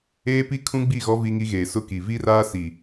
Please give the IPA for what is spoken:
eː˦ p i˦ kʰ ũ˦ ɡ͡b i˦˨ ɣ ɔ˦ v i˦ ŋ i˦ ɣ eː˨ s ʊ˦ k i˨ v i˦ r aː˦ s i˨

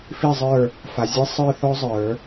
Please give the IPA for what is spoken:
f i˥˨ zˤ ə˞˥˨ | f a˨ zʲ e˥ sˤ ə˞˥˨ θ ɔ˥ zˤ ə˞˨˩˦

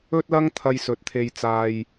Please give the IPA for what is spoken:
ɵ˥ t̚ l ɐ˥ ŋ t̪ʰ ɐ˧ j s ɵ˨˥ t̚ t̪ʰ e˧ j t͡s aː˧ j

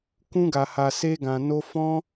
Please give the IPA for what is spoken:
k ũ˦ ɡ a˧ h a˧ s e˦ ɡ ã˧ n o˦ f ɔ̃˦

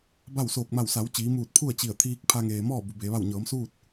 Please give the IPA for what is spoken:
b a˥˨ w s oː˧˩ k̚ m a˧˩ w s a˩˧ w t͡ɕ iː˩˧ m uː˧˩ t̚ pʰ u˥˨ ə̯ t͡ɕ i˧˩ ə̯ t̪ʰ iː˧ k̚ pʰ a˧ ŋ eː˩ m ɔː˥˨ b u˩˧ b e˩˧ ʋ a˥˨ w ɲ ɤː˩˧ m s uː˥˨ t̚

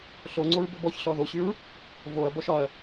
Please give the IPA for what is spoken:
ɬ o ŋ͡ǀ o ɹ b ɵ b ɔ ç ɬ ɔ ð o ɕ y ɹ | v o ɐ̯ b ɔ ʃ ɒ ɐ̯

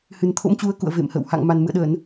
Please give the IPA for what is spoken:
h ɨ˨˩ n t̪ʰ o̰˧˥ m t͡ɕ u˨˦ ə̯ k ṵ˧˨ ə̯ v ḛ˧˨ m h ə̰˧˨ w h a̰˧˨ ŋ m a˨˩ n m ɨ̰˧˨ ə̯ ɗ ə˧˩˨ n

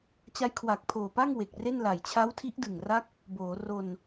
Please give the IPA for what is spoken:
t͡ɕ a˦˥ j kʰ w a˨˩ k̚ pʰ oː˨˩ p a˥˩ ŋ w e˨˩ k̚ r e˥˩ n l a˨˩ j t͡ɕʰ a˦˥ w tʰ i˦˥ ʔ d ɯ˨˩ ŋ r a˦˥ k̚ | b oː˩˦ r o˧ n

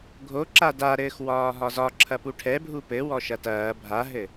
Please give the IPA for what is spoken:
ɡʱ o ǁ a d a ɾ ɘː x w ɒː ɦ ɒ z ɒ ǁʰ ɐ p u ʈʰ ɛ bʱ u p ɘ w ɔ ʃ ɐ t ɐː bʱ a ɦ ɘ

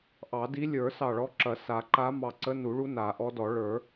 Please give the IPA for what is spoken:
ʔ ɑ˨˩˦ d i˧˥ lʲ ə˞˨˩˦ s ɑ˧˩ ɭ ɔ˧˥ ǁ ɐ˨˩˦ s a˨˩˦ ǃ a˧˥ m ɑ˧˩ ǀ ə˧˥ n u˨˩˦ ɭ u˧˥ n a˨˩˦ ʔ ɔ˧˥ d ɔ˨˩˦ ɭ ə˞˨˩˦

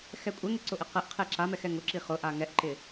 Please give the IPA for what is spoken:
x ɛ kʷʼ ɛ ŋ ɪ ǀ ʊ ʔ ɪ q ɛ ʔ qʰ e ǁ a m ɛ x ɛ ŋ ʊ ǁ i χ ʊ ʔ a ŋ ɛ ʔ ǃ ɪ

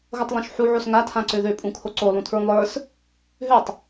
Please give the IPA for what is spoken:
ɣ o tˤ lˠ õ ʃ ħ u ʕ o s ŋ a tʰ ã ǀ ø ð ø pʼ ũ kʰ o ǀ o lˠ ũ tʰ ɹ ũ lˠ ə˞ s | ɦ ø tˤ

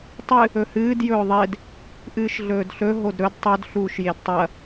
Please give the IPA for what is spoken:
tˤ ɨ | ɵ h ɨː d j ɵː ðˤ e d | ʔ ɨː ʃ ɮ ɵː d ɬ ɵ ɦ o d ɾ ɵ d tˤ ɵ d ɬ uː ʃ j e d tˤ ɐ

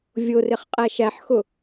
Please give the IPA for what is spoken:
vʲ ʊ r ɪ χ qʼ æ ʃ æ ħ x ʊ

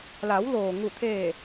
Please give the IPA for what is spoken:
l a˩˧ w l oː˩ ŋ u˧˩ t̪ʰ eː˧˩

